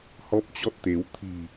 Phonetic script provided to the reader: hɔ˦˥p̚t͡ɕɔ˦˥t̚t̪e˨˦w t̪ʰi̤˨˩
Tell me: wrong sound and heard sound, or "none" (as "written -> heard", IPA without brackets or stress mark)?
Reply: none